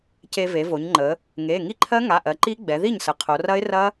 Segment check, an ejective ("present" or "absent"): absent